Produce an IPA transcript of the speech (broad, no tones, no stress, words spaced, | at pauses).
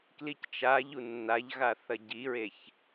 klict͡ʃaʎu nːaʎɣa θɐɟiɹeç